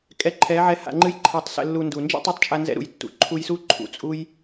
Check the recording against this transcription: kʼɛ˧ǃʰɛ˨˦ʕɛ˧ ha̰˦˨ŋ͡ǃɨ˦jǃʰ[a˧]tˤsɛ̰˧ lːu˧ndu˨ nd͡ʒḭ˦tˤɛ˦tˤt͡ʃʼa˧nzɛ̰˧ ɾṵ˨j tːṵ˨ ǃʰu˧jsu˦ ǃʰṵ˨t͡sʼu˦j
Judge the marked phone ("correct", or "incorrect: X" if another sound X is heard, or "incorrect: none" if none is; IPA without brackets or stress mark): correct